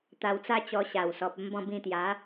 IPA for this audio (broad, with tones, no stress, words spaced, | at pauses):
t̪a˧wt͡sa˦t͡ɕɔ˧ ɕa˨˩wsɔ˨p̚ ə˦mbɔ̃˥˧bĩ˥˧ t̪ja˨˦